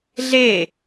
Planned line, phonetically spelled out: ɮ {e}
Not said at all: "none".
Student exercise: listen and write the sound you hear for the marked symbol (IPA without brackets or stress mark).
e